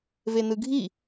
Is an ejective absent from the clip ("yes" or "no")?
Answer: yes